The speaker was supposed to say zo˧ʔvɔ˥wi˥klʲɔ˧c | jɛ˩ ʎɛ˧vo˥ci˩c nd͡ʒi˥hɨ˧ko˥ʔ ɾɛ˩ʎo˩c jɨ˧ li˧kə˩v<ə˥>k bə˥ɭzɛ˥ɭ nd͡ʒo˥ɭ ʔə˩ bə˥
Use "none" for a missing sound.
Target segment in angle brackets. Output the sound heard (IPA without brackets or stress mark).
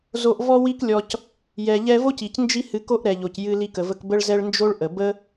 ə˧